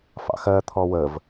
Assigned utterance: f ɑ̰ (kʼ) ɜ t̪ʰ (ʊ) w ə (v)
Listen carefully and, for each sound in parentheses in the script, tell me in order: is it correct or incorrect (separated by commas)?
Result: incorrect, incorrect, correct